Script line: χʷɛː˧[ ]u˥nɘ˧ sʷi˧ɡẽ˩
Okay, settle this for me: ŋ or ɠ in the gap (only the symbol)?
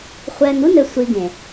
ŋ